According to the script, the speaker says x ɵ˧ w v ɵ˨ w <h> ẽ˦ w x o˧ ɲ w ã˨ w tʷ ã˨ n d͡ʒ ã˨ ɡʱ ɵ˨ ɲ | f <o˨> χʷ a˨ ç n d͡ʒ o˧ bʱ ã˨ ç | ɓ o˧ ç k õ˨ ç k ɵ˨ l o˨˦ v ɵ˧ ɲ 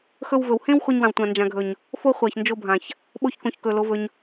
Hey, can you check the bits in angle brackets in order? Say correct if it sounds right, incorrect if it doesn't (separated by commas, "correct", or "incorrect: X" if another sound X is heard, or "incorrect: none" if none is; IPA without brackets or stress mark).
correct, incorrect: o˧